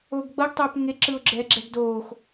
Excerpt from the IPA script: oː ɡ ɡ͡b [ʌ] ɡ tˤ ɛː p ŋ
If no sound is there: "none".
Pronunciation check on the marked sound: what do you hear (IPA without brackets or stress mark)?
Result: ʌ